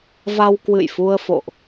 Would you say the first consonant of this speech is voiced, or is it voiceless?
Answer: voiced